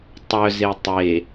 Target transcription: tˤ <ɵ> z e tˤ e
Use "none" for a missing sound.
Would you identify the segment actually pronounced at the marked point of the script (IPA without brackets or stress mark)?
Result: œ